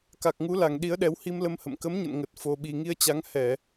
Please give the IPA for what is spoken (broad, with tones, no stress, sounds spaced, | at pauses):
k a˨˩ k̚ ŋ u˨˦ l a˨˩ ŋ ɗ i˨˦ ə̯ ɗ ɛ˨˦ w h i˧ m l ə˧ m h ə̰˧˨ m k ə˨˦ m ɲ ə̰˧˨ n ŋ ə˨˩ t̚ f o˨˩ ɓ i˨˩ ŋ i˧ ə̯ t͡ɕ a˨˦ ŋ h ɛ˧˩˨